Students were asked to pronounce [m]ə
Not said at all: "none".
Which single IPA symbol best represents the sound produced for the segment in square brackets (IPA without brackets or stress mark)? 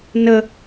n